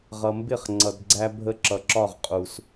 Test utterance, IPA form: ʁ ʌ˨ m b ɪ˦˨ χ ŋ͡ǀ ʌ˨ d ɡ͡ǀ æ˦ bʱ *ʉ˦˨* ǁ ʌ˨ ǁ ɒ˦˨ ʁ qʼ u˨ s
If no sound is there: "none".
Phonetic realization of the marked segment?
ə˦˨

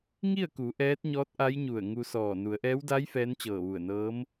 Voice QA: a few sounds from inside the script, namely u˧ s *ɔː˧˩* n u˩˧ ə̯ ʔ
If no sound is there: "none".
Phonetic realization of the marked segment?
ɔː˧˩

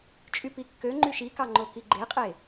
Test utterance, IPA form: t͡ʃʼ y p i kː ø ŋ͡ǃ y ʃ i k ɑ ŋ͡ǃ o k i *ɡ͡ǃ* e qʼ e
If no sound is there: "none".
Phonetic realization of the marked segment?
ɡ͡ǃ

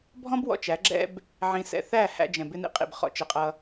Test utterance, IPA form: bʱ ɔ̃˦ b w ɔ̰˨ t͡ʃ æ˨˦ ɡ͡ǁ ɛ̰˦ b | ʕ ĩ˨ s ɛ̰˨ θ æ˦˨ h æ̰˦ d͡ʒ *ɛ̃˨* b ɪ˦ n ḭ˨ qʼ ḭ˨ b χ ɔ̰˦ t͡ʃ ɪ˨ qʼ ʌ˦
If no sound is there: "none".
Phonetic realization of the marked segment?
ɛ̃˨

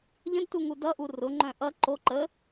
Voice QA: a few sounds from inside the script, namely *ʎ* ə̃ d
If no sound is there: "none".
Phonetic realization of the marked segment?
ʎ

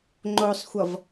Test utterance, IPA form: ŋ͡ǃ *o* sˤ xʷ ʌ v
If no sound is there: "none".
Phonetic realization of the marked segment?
o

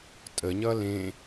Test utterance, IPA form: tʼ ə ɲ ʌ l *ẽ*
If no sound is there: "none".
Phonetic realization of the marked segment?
ẽ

